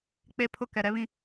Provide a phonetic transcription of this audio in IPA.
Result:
k͡p e˦ pʰ ʊ˦ k ɛ˨ ɾ ɛ˦ β ĩ˦

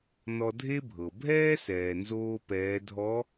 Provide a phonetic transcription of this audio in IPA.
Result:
n ɔ˧ dʱ e˥ bʱ ɤ˩ bʱ ɛː˥ s ɛː˩ n z oː˧ p ɛː˩˧ dʱ ɔ˧˥

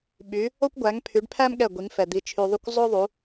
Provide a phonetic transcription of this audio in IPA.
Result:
ɓ y˨˦ | o˥ kʷ ɡʷ æ˨˦ ŋ pʰ y˨˦ ɖ pʰ æ˥ m ɠ ɛ˦˨ ɡʷ i˨˦ ŋ f ɛ˨ d̪ i˨ t͡ʃʰ y˨ ðˤ y˦˨ kʷ zˤ o˥ ðˤ u˨˦

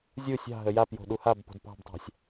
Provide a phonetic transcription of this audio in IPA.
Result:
zʲ u sʲ ɑ̤ ɦ ə j a p j o̤ ɗ u h a b p o̤ d p ɑ̤ b tˤ ɑ̤ sʲ

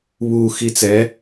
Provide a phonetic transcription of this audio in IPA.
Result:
β u x i t͡s ɛ

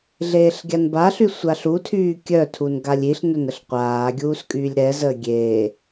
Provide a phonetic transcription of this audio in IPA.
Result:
ɮ eː ɬ ɡʲ a n b a ɬ y sʷ a ɬ u tʰ yː kʲ œ tʰ u n ɡ a lʲ i ɬ n œ n ə ɬ qʷ aː ɡʲ uː s kʼ yː lʲ ɾ ɛ z əː ɡʲ eː

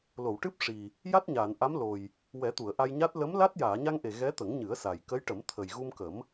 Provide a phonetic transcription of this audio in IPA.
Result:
l o˨˩˨ w ʈ ɨ˦˥ p̚ ʂ i˨˩ | j a˦˥ t̚ ɲ aː˨˩˨ n ʔ a˧˥ m l o˨˩ j | w ɛ˨˩˦ t̪ u˨˩˨ ə̯ ʔ a˧ j ɲ a˦˥ t̚ l ə˧˥ m l a˦˥ t̚ j aː˨˩˨ ɲ a˧ ŋ ʔ e˨˩ ɣ ɛ˧˥ t̪ ə˨˩˦ ŋ ɲ ɨ˨˩˦ ə̯ s a˨˩ j k ə˧˥ j ʈ ə˨˩˦ m t̪ʰ ə˨˩ j ɣ u˧ m k ə˨˩˦ m

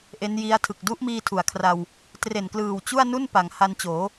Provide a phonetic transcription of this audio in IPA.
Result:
ʔ e˦˥ n j i˦˥ a̯ tʰ ɯ˨˩ k̚ d u˦˥ ʔ m iː˧ tʰ u˩˦ a̯ kʰ r a˧ w | t r e˨˩ n k l ɯː˨˩ w t͡ɕ u˥˩ a̯ n u˥˩ n p a˩˦ ŋ h a˧ n t͡ɕ oː˩˦

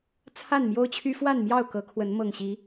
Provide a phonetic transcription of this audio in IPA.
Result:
t͡sʰ a˥˨ n m j o˦ ʊ̯ t͡ɕʰ y˦ f w a˥˨ n m j ɑ˥˨ ʊ̯ k ɤ˨˦ kʰ w ə˨˦ n m ɤ˨˩ ŋ ɕ i˨˦

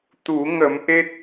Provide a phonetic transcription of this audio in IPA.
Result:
t̪ u˨˩˦ ŋ ə˨˩˦ m ʔ e˦˥ t̚

